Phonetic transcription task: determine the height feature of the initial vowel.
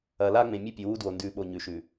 low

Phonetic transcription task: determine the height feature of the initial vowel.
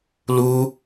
high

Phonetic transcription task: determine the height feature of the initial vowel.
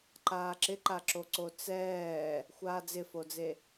low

